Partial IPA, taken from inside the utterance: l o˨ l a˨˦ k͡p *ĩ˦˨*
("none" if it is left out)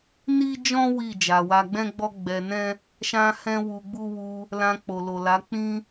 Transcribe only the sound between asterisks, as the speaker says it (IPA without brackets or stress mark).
ĩ˦